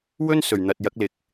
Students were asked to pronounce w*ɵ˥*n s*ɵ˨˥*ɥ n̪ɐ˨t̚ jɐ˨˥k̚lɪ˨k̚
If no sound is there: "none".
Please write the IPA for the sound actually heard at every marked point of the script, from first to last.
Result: ɵ˥, ɵ˨˩

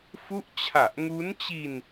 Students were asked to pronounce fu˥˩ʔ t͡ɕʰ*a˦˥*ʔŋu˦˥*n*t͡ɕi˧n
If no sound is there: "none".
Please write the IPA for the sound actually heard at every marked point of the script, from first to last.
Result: a˨˩, n

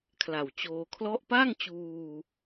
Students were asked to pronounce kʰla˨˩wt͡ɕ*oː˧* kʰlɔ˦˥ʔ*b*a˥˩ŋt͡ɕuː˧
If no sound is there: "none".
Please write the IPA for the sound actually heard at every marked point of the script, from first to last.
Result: oː˧, p

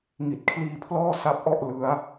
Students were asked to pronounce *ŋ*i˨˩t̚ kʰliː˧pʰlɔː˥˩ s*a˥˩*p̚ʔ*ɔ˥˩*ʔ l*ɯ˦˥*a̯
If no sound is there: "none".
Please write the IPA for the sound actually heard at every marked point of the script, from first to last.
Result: ŋ, a˦˥, ɔ˥˩, ɯ˦˥

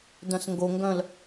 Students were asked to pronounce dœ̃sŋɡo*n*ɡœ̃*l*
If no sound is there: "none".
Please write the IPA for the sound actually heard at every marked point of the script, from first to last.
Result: ŋ, l

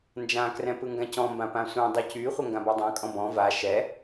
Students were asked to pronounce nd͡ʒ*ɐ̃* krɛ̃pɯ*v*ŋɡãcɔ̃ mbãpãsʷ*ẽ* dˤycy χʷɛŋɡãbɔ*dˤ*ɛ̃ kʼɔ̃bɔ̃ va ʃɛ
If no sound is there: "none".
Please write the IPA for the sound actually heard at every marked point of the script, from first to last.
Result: ã, none, ɛ̃, dˤ

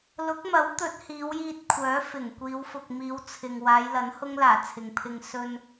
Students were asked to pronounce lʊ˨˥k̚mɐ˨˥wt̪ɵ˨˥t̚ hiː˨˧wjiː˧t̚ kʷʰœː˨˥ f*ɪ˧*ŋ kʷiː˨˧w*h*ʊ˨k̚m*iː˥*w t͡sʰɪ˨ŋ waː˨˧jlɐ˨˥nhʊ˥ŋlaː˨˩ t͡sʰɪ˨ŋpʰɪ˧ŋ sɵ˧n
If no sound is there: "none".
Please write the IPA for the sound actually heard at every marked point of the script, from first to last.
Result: ɪ˨˩, f, iː˨˧

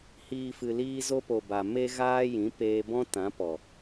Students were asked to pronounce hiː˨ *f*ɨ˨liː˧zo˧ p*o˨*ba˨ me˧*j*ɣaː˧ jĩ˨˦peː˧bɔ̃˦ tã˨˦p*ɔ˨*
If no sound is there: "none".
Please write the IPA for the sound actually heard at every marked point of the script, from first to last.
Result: f, o˨, none, ɔ˨

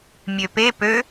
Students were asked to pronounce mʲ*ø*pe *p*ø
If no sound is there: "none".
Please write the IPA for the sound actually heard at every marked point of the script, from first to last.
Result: ø, p

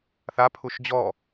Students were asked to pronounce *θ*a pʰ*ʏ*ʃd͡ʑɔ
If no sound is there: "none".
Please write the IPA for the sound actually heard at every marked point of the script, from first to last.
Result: θ, u

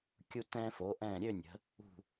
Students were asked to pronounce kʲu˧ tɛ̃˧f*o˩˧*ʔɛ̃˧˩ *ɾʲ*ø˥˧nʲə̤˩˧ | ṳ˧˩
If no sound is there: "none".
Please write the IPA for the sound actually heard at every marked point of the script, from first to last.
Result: o˩˧, ɾʲ

